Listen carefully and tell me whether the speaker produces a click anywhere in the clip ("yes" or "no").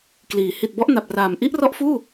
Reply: no